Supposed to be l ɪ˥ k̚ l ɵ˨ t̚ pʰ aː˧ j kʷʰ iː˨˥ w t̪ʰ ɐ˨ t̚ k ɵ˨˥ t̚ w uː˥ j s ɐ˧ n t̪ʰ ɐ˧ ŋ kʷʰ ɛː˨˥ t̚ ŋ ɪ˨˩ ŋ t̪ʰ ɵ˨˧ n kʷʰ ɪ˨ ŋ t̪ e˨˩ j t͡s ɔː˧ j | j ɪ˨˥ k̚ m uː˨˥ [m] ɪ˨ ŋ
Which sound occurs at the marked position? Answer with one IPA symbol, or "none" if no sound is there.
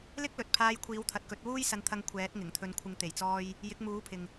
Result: pʰ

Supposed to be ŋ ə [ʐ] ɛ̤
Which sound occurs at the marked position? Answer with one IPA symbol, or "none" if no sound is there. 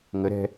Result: ɾ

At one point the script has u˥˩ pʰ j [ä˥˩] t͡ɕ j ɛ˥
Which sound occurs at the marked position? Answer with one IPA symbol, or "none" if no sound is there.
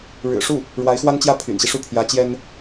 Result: ä˧˥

